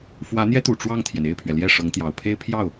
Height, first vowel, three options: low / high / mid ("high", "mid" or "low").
low